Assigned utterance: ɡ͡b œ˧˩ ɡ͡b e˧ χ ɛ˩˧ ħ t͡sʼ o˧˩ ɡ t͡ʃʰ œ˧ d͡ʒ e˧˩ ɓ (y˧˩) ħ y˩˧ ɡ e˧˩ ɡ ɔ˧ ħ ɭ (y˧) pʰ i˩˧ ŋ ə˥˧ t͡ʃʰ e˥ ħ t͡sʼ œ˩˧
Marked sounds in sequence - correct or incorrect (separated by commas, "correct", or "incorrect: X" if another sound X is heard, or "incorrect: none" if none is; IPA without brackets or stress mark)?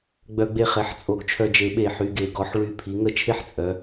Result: incorrect: e˧˩, correct